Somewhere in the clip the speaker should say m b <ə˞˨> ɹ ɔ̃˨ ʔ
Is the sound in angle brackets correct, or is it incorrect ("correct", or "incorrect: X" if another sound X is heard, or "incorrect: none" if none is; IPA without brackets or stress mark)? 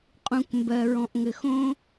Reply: incorrect: ɜ˨